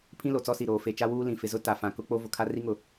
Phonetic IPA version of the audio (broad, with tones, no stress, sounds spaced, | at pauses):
pʰ ĩ˦ l o˨ t͡s ɔ˦ s i˨ ɾ oː˨ f e˨ t͡ʃ a˦ w uː˦ l ĩ˨ f ɪ˨ z ʊ˦ t a˨ f ã˨ k ʊ˦ k͡p o˦ v ʊ˨ kʰ a˦ r i˦ ŋ ʊ˨